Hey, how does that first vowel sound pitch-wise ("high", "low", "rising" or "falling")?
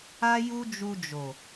high